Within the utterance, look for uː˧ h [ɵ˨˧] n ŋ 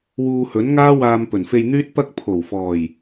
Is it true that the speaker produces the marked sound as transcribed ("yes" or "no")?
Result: no